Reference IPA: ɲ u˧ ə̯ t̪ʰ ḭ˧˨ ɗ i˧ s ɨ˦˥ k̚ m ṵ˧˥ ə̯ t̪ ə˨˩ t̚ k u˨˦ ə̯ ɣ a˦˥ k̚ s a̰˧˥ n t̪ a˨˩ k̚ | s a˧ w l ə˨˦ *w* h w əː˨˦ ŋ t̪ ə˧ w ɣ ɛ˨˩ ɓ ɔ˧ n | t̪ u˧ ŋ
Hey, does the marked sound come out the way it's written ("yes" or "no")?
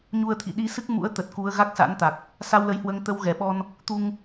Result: no